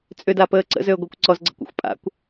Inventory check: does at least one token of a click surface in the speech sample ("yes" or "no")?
yes